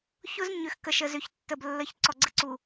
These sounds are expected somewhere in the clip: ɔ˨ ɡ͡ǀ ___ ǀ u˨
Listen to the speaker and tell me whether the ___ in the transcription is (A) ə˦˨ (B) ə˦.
B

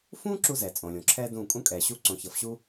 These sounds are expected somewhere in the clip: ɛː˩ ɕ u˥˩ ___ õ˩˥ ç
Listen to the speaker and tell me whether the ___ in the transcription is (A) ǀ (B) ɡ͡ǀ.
A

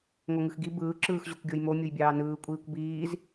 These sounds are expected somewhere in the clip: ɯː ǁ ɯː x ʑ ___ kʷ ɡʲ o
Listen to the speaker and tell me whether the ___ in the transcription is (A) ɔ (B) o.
B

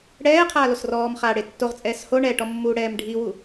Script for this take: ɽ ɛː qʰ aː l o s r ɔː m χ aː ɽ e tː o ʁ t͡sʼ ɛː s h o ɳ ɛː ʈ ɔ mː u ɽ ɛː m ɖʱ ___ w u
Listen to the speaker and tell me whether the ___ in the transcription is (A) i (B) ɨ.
A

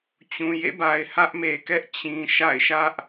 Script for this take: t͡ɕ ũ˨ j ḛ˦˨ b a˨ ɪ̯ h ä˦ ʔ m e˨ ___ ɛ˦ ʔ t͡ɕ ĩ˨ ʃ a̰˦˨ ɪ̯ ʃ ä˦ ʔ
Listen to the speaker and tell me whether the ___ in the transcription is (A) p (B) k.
B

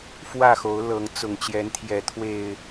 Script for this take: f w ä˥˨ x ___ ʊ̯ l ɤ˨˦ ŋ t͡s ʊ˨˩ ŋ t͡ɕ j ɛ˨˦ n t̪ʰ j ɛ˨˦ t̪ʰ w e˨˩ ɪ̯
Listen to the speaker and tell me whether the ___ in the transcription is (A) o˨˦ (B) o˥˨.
A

